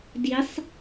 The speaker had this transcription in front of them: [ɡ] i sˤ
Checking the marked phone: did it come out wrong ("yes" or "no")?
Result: yes